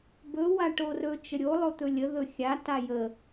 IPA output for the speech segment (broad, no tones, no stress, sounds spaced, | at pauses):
b ɵ w a ʈ o r ɵ t͡ʃ ə ɾʲ o lˠ o t̪ ɵ lʲ ə ð ɵ xʲ a t a j ə